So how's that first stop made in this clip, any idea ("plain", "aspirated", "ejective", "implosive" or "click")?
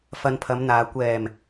aspirated